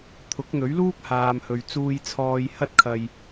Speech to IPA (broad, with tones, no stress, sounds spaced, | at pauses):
t̪ʰ ʊ˨˥ k̚ n̪ ɵ˨˥ ɥ l uː˥ k̚ h aː˨ m h ɵ˨ ɥ t͡s uː˧ j t͡sʰ ɔː˧ j h ɐ˥ t̚ kʰ ɐ˧ j